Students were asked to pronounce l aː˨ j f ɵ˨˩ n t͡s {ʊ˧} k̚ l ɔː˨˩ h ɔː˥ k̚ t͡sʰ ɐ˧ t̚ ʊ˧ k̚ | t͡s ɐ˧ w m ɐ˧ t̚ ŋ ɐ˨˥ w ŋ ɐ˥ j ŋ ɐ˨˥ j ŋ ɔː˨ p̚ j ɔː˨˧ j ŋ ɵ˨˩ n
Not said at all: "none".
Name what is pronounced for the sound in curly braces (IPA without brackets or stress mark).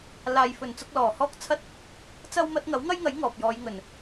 ʊ˧